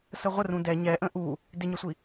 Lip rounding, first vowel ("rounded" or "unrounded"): unrounded